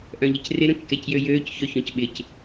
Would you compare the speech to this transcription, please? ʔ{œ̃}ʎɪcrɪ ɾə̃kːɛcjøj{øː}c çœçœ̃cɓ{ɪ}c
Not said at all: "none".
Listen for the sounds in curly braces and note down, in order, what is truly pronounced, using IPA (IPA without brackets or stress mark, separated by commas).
œ̃, øː, ɪ